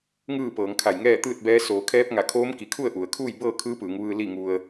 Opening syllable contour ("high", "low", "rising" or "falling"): falling